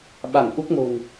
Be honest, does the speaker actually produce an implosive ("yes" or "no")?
yes